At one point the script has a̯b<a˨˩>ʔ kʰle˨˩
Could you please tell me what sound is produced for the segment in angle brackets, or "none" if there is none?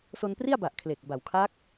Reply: a˨˩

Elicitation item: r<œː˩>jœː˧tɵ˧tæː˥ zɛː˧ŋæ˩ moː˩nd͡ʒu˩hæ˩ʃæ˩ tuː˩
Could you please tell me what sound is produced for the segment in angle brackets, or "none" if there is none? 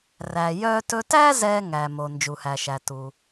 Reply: æː˩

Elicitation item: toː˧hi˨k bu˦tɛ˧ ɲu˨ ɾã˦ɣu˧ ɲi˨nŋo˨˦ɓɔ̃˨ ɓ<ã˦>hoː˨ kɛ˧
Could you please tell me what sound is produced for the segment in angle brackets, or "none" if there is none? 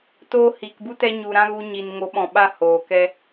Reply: a˦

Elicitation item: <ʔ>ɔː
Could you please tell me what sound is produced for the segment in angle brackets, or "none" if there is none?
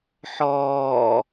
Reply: ħ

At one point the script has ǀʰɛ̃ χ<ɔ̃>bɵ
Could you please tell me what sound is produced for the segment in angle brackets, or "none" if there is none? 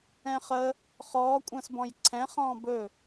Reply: ɔ̃ː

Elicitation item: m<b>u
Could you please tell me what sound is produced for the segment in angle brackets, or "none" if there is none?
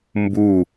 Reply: b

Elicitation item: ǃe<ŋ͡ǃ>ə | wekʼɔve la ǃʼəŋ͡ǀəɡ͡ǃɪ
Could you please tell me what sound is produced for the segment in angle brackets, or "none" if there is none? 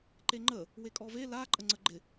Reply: ŋ͡ǃ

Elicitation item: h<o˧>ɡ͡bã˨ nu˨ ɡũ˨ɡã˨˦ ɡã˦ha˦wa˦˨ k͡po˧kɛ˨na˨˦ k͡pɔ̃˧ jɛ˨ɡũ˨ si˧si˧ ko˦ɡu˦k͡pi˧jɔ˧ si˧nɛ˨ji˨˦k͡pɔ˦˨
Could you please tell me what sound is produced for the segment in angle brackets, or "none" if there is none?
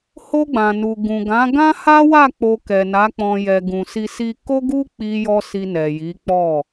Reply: o˧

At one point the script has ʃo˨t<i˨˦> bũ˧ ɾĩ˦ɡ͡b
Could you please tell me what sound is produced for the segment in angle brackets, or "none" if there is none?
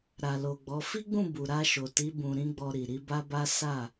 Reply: i˨˦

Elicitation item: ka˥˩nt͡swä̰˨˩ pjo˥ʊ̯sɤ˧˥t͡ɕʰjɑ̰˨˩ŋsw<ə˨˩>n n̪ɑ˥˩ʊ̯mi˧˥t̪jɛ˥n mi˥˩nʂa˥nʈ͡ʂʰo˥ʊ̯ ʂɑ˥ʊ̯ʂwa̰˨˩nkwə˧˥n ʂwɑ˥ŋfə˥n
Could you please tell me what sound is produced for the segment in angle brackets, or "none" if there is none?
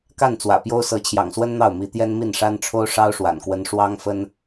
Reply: ə˥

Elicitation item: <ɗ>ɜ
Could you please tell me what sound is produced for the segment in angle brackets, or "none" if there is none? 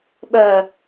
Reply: ɓ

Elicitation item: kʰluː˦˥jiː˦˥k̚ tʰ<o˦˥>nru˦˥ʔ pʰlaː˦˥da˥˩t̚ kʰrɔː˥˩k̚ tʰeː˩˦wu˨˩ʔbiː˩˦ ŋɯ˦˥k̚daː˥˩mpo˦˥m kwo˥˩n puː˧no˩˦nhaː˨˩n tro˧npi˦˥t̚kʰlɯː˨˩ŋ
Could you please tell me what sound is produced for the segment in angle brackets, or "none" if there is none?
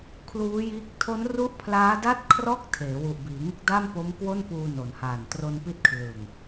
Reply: o˦˥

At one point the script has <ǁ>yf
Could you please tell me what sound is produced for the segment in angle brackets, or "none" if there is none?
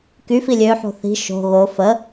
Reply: k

